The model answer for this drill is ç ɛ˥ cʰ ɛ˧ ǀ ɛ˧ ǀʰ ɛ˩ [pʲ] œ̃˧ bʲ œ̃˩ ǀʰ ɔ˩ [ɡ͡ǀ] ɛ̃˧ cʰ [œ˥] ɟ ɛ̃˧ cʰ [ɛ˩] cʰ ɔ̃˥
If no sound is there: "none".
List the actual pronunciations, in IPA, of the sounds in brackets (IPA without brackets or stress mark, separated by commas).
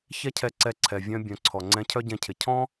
vʲ, ŋ͡ǀ, œ˥, ɪ˩